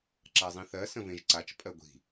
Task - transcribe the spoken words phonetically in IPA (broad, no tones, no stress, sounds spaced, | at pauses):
ǁ a zˤ ĩ θ ɜ s ə̃ v ẽ ʒ ǀ a t͡ʃ pʼ ɜ ɡʷ i̤